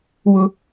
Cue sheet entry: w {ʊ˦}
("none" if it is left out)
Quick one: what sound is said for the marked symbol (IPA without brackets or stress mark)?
ʊ˦